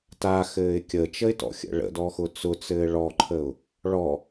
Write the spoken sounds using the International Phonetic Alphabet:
t a x ɘː ɪ̯ kʲ ə t͡ʃ ə ɪ̯ t ɔ̰ xʲ ə̰ ɭ ə̰ d ɔ x ʊ t͡s ʊ t͡s ɘː ɭ ɔ ǃʰ ə ʊ̯ | ɭ ɔ

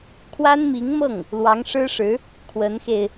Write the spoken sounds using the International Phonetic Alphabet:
kʰ w a˥ n m i˧˥ ŋ m ɤ˥˩ ŋ | l w ɑ˧˥ ŋ ʂ ɻ̩˥ ʂ ɻ̩˧˥ | kʰ w ə˧˥ n x e˧ ɪ̯

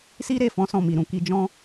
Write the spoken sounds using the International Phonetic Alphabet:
s i˦ ɾ e˦˨ f ɔ̃˨˦ s ɔ̃˦˨ m i˨ ɾ ũ˧ k i˧ d͡ʒ ɔ̃˦

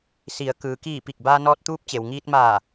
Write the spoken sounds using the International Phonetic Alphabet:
s i˩˧ ə̯ k ɯː˩ k iː˧˩ p i˧˩ k̚ b aː˧ n ɔː˧ t̚ t̪ uː˧˥ p̚ t͡ɕ e˩ w ŋ iː˧ t̚ m aː˧˩

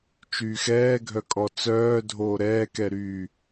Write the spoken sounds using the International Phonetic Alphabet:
t͡ʃ yː x ɛː ɡʱ œ kʼ ɔ t͡s œː dʱ oː ɾ ɛː k ɛ ɾ yː

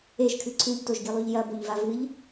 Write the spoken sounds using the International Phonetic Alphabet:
e ʒ kʰ ɨ ǀʰ ʉ ʎ t o ʒ ɡ i lˠ ʉ ʎ j ɐ b o ʎ v a v ɨ ʎ

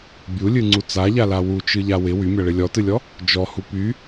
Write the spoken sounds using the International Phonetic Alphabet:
bʲ u lʲ ɨ ŋ͡ǀ u t͡s a ʎ a l a w u t͡ʃ ɨ ʎ a w ɪ w y mʲ a ɭ ɪ lʲ ɔ t ɨ lʲ ɔ | d͡ʒ ɔ h u p y

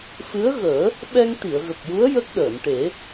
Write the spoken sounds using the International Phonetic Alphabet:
f ɨ˧˥ ə̯ ɣ əː˨˩˦ | ɓ ɛ˧ ŋ t̪ i˨˩˨ ə̯ ɣ ə˨˩ k̚ j u˧˥ ə̯ j ə˦˥ k̚ ɗ əː˨˩˨ n ʈ e˨˩˦

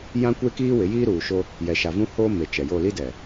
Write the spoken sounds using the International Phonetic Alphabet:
j ã˦ kʷ e˦ k iː˦ w ɪ˨˦ j iː˦ ɾ uː˨ ʃ o˦ | j ɛ˨ ʃ a˨ v ũ˦ h oː˦ m e˨ t͡ʃ ɛ˨ j o˦˨ l i˦ d ɛ˨

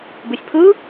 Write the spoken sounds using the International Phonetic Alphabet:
b ɨ sʲ pʰ ɯ

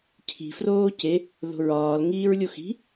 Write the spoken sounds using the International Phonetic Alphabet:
cʰ i̤ f r oː c e | ð o̤ ɹ ɒː l ŋ iː ɹ lʲ o x i̤

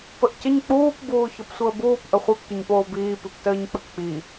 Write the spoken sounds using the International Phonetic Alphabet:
p ə ʔ c ə ɲ k͡p uː p b uː ç ɒ p sʷ əː b uː p ʔ ə χʷ e p tʷ ə ɲ p oː b iː p i p t əː ɲ k͡p ə k k͡p i

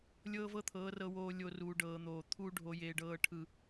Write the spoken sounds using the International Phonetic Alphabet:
lʲ ɤː˦ v ɤ˦ t̪ʰ ɤː˨˦ r ɤ˨ w oː˨ lʲ o˨ r uː˨ ɖ ɤː˨ n̪ oː˨ t̪ʰ uː˦ ɖʱ o˨ j eː˨ ɖ ɤː˨ ʈʰ ɯ˨

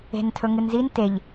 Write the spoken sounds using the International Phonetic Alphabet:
e̤ n tʰ ɵ ŋ ɨ n z i n t e ʎ

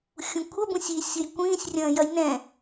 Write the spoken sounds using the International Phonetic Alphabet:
xʲ ũ kʷʰ ɐ b ũ sʲ i sʲ ʊ j kʷ ĩː sʲ rʲ ɐ̃ː j ɐ j n ɛ̃

